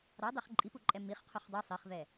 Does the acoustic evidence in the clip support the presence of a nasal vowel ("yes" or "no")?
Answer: no